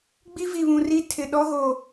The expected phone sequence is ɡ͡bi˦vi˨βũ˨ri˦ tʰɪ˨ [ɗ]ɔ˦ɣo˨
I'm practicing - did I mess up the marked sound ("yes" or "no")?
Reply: no